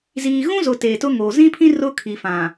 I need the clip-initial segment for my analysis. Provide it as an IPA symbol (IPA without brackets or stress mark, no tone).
z